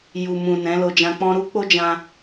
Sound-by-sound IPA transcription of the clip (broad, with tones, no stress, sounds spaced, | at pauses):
j u˨ m ũ˨ n ɛ̃˨˦ l o˧ d͡ʒ ã˧ k͡p ɔ̃˧ ɾ u˧ k͡p o˦ d͡ʒ ã˦